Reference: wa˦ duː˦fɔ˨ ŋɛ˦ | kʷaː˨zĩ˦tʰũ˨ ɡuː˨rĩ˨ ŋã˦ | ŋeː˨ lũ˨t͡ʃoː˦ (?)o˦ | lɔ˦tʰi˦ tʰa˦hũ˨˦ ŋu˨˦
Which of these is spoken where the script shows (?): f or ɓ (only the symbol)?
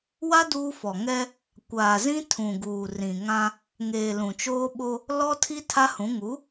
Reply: ɓ